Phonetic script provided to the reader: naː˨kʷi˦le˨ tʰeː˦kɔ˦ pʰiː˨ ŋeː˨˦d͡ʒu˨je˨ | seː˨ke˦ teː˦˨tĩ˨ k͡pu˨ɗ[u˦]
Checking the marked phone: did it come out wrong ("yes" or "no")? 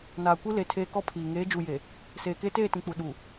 yes